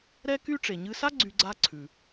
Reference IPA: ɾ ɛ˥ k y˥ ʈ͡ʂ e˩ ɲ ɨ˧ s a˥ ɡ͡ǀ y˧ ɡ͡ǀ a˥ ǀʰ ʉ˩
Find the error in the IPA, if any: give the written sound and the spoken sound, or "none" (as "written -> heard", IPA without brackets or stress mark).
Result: none